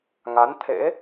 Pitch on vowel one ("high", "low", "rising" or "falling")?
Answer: rising